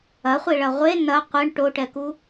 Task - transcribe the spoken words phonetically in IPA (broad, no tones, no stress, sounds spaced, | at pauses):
ɐ χʷ i ɭ ɐ ʁʷ e n ɐ qʷ ə ɳ ʈ o ʈ ɛ k u